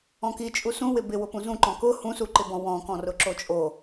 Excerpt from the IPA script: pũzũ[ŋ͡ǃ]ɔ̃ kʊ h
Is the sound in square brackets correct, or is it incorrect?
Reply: incorrect